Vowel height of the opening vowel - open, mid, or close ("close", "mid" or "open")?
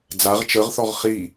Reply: open